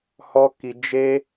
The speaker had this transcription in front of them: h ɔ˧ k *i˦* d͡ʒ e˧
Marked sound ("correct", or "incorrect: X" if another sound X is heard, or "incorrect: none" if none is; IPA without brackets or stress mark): incorrect: i˨